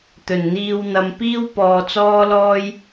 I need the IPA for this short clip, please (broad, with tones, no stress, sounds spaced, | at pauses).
t̪ ɵ˨˩ n n̪ iː˧ w n̪ ɐ˨˧ m p iː˥ w p ɔː˧ t͡s ɔː˥ l ɔː˥ j